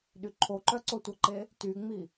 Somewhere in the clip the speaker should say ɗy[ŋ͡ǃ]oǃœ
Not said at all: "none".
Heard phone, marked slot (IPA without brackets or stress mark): ǃʰ